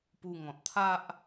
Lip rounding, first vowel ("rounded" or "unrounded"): rounded